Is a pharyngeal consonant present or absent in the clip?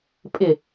absent